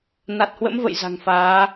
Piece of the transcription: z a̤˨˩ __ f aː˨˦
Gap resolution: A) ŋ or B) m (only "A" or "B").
A